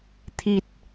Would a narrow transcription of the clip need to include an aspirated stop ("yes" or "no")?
yes